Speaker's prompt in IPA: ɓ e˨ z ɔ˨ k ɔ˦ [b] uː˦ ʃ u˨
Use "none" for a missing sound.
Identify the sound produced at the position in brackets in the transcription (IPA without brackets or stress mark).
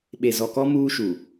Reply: m